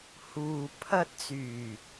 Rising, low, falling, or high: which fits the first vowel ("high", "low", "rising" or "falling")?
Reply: low